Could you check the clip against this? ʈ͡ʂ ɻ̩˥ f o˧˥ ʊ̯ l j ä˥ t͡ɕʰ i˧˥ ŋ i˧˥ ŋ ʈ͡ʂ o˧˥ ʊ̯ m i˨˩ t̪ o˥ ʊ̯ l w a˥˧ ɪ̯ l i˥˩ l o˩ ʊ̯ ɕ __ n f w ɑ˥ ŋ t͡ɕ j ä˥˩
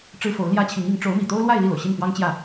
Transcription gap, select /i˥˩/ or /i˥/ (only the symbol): i˥˩